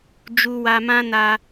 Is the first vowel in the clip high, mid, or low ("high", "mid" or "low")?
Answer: high